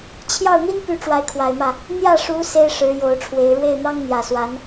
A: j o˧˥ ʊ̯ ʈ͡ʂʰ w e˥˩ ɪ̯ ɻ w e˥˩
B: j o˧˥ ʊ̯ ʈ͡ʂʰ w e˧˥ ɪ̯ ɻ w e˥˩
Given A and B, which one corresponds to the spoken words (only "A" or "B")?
B